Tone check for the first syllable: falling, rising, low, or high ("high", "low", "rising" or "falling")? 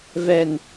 low